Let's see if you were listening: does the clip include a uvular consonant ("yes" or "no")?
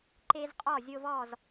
yes